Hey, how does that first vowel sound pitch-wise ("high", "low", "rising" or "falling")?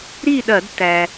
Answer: falling